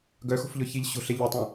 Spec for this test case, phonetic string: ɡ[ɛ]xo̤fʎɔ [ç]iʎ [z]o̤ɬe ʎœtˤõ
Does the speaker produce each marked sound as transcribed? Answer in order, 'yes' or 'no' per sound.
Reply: no, yes, no

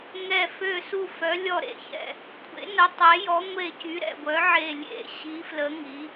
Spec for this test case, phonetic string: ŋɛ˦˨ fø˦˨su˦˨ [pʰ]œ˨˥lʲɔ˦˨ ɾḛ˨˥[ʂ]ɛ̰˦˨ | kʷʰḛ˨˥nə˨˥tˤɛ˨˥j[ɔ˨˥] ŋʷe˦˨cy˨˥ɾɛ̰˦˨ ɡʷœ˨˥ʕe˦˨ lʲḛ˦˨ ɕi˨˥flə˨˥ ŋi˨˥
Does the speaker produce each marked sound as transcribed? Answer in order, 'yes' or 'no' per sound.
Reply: no, no, yes

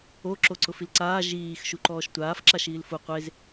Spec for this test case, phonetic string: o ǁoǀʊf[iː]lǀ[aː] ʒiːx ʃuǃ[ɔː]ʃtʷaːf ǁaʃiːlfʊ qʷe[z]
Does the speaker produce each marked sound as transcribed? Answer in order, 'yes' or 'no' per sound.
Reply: no, yes, yes, yes

